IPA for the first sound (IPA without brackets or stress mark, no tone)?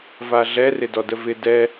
v